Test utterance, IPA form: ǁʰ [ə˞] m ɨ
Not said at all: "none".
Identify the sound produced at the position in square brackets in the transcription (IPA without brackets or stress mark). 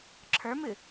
ə˞